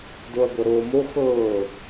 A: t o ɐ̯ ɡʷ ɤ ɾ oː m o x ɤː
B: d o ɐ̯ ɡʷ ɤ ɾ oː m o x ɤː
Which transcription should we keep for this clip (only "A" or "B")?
B